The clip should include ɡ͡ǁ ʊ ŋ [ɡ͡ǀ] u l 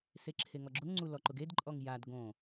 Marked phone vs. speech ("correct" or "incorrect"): incorrect